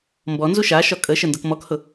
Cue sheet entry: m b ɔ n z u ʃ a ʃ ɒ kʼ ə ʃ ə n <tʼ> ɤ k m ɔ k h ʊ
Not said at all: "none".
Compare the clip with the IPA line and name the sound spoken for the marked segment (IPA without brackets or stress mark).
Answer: d